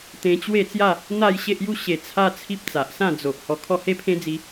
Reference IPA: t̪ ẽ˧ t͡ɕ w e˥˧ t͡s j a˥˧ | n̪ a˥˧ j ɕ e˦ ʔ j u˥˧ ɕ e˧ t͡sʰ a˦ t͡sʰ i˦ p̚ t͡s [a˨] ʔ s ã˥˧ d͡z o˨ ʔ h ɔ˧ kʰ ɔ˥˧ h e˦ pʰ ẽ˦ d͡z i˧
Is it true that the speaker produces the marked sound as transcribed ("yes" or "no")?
yes